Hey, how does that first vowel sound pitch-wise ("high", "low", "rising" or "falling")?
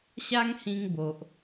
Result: high